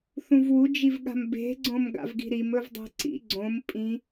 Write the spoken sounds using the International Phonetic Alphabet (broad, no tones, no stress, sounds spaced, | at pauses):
θ ũ v w u d͡ʒ i v ɠ a̤ m b e̤ ɡ͡ǀ õ m ɡ a̰ v ɡ i̤ ɾ i m ɵ v dˤ e̤ ǀ ḭ ɡ͡ǀ õ m pʼ ĩ